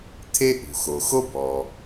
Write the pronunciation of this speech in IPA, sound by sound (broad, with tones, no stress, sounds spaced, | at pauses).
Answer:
t̪ʰ e˥ ʔ ṳ˩ x o˩ x o˥ b ɔː˩